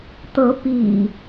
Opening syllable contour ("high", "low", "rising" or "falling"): rising